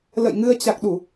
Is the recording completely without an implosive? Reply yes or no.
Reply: no